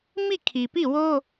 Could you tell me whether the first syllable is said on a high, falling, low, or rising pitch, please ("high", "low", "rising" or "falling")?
falling